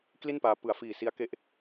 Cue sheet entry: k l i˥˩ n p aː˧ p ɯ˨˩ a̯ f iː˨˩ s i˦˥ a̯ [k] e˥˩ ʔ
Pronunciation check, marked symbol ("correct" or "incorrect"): correct